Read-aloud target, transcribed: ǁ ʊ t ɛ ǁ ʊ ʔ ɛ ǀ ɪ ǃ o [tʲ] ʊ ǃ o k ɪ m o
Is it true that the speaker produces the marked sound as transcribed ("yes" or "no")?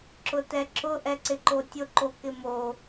yes